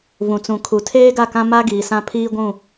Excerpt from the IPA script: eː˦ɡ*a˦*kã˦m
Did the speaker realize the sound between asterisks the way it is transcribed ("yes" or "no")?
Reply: no